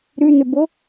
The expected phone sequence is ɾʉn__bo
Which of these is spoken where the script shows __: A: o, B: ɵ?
B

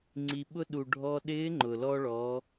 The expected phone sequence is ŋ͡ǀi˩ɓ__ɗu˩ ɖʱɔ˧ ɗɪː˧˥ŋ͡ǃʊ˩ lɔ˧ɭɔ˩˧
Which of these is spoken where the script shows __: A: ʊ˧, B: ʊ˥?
A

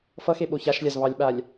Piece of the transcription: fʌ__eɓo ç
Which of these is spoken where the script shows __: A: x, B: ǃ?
A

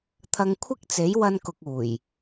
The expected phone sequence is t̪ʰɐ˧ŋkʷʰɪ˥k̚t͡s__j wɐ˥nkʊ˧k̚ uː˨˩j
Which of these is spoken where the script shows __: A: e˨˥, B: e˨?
A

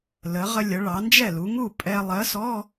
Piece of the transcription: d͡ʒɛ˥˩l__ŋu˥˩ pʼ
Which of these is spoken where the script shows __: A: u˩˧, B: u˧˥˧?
A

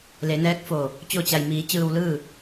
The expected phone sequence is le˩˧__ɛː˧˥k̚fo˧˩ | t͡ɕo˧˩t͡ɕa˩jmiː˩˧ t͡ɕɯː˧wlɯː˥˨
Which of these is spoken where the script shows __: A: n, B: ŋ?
A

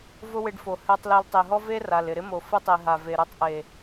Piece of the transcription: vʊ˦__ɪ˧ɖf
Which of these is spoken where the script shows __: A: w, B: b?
A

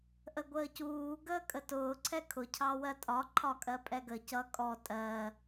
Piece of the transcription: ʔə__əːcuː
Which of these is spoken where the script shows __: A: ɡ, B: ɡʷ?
B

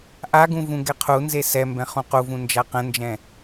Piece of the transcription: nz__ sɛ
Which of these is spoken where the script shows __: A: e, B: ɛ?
A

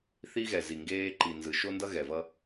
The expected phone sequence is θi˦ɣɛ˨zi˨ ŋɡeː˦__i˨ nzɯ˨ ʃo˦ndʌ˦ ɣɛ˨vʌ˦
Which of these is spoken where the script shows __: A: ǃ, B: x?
A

